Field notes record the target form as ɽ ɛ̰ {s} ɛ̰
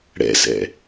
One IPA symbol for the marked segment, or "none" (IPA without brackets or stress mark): s